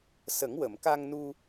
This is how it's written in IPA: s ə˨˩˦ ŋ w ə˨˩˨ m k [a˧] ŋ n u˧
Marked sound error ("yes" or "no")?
no